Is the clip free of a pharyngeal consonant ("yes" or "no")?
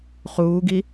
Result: yes